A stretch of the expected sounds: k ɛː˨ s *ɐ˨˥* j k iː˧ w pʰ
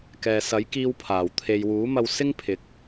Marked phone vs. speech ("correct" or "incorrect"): correct